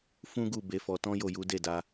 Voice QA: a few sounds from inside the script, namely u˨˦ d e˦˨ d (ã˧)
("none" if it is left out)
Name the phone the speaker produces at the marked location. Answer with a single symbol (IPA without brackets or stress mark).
a˧